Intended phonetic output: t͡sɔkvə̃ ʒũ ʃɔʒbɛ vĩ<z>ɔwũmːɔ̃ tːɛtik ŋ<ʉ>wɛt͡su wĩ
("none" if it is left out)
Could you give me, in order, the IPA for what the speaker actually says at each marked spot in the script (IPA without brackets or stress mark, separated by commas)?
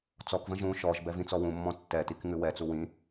t͡s, ʉ